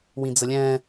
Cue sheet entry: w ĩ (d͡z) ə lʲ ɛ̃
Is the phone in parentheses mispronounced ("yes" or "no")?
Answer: no